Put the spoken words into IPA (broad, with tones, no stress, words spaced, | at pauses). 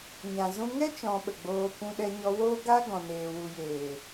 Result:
ɲã˨zũ˧ ŋɛ˦ t͡ʃɔ̃˧ɓə˨ɡ͡boː˧ kʷũ˧ɗɛ˧ɲɔ˧woː˦ ɡa˦ ɡɔ̃˨neː˨wu˨jeː˨